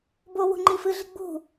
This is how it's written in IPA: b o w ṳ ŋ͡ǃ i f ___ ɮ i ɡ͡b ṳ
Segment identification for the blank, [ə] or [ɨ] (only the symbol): ɨ